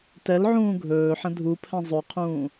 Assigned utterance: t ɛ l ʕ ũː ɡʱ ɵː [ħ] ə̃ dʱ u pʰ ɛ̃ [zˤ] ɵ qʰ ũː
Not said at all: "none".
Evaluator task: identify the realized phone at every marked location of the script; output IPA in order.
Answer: ħ, zˤ

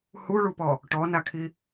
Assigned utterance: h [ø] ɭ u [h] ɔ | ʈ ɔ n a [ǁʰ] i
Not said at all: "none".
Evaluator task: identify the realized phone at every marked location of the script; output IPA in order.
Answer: u, p, kʰ

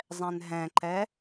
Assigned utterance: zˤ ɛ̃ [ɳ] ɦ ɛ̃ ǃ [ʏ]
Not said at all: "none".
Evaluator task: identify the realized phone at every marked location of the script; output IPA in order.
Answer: n, ɛ

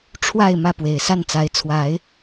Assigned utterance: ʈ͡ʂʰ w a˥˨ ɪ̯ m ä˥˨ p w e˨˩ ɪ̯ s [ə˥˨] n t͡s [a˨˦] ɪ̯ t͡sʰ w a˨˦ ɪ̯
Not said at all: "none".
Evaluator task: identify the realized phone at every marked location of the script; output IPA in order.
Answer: a˥˨, a˨˦

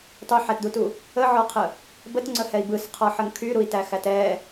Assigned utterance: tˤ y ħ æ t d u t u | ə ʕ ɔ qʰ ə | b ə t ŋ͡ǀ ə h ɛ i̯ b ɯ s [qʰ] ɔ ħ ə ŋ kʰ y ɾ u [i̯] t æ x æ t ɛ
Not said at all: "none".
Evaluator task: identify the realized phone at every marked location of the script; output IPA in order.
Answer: qʰ, i̯

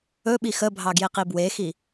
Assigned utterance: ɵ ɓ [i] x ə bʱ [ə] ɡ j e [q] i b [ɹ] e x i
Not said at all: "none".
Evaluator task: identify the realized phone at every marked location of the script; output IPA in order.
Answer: i, ɑ, q, w

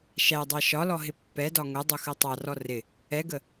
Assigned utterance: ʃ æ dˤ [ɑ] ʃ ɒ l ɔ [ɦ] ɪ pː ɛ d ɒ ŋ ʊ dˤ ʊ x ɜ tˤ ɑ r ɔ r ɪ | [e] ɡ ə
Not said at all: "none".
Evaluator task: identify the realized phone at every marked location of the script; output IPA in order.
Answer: ɑ, ɦ, ɛ

